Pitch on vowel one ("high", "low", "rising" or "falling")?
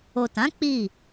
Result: low